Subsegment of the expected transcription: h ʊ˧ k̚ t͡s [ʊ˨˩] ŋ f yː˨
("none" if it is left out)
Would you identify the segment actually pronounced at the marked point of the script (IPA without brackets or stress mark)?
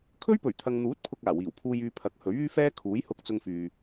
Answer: ʊ˧